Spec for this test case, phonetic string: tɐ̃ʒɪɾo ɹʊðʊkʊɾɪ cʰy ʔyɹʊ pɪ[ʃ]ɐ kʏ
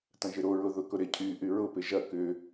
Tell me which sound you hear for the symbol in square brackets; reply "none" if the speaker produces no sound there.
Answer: ʒ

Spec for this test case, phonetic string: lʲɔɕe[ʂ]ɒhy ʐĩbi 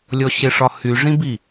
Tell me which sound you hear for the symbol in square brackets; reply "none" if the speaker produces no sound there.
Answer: ʂ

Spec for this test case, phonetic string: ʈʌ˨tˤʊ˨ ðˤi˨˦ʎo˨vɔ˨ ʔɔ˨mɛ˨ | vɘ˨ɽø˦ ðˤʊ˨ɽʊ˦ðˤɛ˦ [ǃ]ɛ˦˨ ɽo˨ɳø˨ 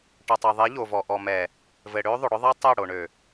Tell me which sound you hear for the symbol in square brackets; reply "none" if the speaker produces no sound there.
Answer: tˤ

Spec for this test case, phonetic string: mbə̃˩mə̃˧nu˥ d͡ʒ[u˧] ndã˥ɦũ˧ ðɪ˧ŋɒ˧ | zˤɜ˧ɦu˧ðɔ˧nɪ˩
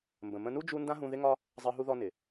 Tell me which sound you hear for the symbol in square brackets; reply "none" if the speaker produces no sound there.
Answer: u˧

